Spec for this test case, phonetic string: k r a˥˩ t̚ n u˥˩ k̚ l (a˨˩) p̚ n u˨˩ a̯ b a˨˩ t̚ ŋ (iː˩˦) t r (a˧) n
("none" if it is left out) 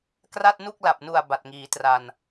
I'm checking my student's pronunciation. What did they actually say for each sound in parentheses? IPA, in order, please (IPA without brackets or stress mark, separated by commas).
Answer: a˨˩, iː˩˦, a˧